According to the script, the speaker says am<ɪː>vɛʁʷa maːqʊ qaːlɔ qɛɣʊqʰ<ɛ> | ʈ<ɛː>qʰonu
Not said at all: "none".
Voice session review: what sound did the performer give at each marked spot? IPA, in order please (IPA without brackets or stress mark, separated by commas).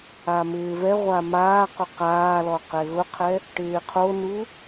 ɪː, ɛ, ɪː